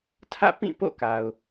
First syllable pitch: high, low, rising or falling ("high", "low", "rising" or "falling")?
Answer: falling